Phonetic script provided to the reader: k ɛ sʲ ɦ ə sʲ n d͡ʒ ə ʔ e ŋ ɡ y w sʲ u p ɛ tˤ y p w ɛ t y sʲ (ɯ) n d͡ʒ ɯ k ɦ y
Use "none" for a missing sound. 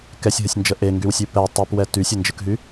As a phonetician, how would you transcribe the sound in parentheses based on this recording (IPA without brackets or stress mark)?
ə